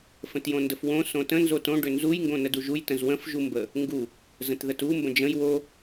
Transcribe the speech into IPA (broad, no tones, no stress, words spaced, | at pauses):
fə̃tjõndəfwõ sõtə̃ nzotõ ɖʏnzuj ŋɡõnəduʒuj tə̃zwə̃f ʒumbə | ŋɡu | zə̃tðətu mbə̃d͡ʒə̃j wo